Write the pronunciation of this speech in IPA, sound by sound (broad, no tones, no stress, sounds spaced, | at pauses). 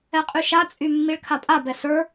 ɛ qʼ y ʃ a t͡sʼ y mː i ɭ kʰ a pʼ a b ɛ s ə˞